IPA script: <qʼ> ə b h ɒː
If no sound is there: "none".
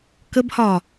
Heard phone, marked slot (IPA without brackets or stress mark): k